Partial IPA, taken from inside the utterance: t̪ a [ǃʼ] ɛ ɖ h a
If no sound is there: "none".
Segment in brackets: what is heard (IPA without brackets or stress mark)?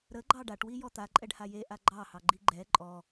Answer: ǃʼ